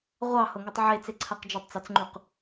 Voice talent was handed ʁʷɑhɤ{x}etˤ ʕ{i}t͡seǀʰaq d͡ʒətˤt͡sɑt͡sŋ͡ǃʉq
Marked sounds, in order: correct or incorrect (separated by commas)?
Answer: incorrect, incorrect